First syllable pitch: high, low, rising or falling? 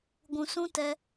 low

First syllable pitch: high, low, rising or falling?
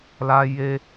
high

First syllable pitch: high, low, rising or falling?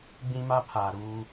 high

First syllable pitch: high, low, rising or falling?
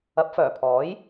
rising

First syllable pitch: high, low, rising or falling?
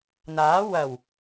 rising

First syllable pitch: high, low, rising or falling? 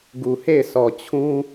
low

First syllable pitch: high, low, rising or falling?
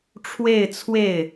falling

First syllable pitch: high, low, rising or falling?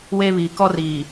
high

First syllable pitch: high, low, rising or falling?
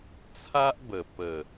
high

